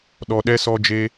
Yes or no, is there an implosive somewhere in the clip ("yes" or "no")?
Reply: yes